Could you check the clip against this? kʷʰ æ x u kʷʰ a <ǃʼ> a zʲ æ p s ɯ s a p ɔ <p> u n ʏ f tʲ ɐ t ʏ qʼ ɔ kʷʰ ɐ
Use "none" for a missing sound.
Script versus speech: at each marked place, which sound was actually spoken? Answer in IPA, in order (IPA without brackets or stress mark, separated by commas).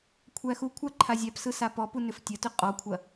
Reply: ǃʰ, p